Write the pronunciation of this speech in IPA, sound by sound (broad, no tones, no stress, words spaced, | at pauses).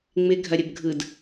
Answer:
ŋ͡mɪ ɡʱɐɾʲəbɡʱɯd